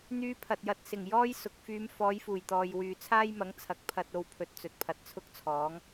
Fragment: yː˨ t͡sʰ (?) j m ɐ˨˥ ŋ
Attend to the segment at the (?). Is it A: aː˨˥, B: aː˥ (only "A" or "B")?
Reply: B